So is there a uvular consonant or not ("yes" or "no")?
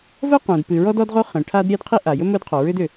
yes